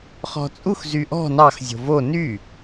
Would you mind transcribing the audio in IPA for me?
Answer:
χɔ̤t͡sʼux zyʔɔ̤ nɑx zʲo̤vo ny

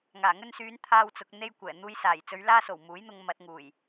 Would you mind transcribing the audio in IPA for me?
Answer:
ŋaː˨˩ŋɵ˧nsyː˨˧n t̪ʰaː˧wt͡sʊ˨k̚ n̪e˧jkʷɛː˨˩ n̪uː˧jsaː˨˩jt͡sɵ˨˧ɥ laː˧so˨˩w muː˨˥jn̪ʊ˧ŋ mɐ˧t̚ ŋuː˨˩j

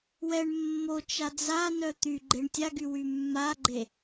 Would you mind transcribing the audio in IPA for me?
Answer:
wɛɳ mːot͡ʃa d͡zanœ t̪yɡ͡ǃeɳ tʲaɡywy mːaɡ͡ǃe

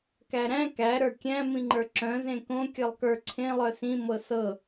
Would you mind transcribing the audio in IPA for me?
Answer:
kæɾæ̃ kæ ɾə˞kʲæ̃ mĩŋ͡ǃə˞ǁœ̃ zẽkõ kʲɤlˠkə˞ ǀʰẽ lˠœsĩ mɤsɤ

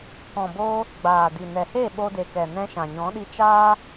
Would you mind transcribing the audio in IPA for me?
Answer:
kɔ̃˨boː˧ | ɡ͡baː˨di˨nɛ˨he˦˨ ɓo˧de˨kɛ˨ nɛ̃˧ ʃã˨ɲɔ̃˨˦ɗi˧ t͡ʃaː˦

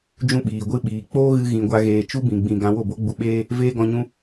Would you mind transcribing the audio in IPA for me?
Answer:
d͡ʒũ˦ɓiː˨ ɡʷɨ˧ɓiː˨k͡poː˦ɣɨ˧ ɣĩ˧ɡʷa˦ɣeː˧ t͡ʃu˦bĩ˨ɡ͡bĩ˨ ɡã˧ wo˦˨bo˦ɡ͡bu˧ɓeː˦ | veː˦ɡɔ̃˧ɲũ˦

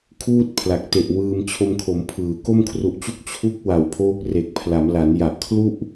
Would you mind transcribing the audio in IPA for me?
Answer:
kʰuː˥˩t̚ pʰla˨˩k̚te˨˩ʔwɯː˧m t͡ɕʰo˧mkʰo˩˦mpʰɯː˩˦ ko˥˩mkʰru˨˩ʔt͡ɕu˥˩k̚ t͡ɕʰu˦˥k̚ wa˨˩wpʰoː˦˥k̚re˨˩k̚pʰla˩˦m la˩˦nja˨˩ʔ kʰlu˥˩ʔ

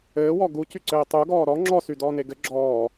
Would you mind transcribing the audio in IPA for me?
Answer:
ɘːwɔ ɡucyǀɘː tˤuɡɔː ɾɔ ŋ͡ǁɔsydɔːne ɡɘ ɡ͡ǁɔː

